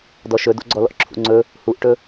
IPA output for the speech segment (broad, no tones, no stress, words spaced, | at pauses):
dɔʃɵdo̰ɡ͡ǀɔ lɔ̰ǁʰṵŋ͡ǀɵ | huʔʈɵ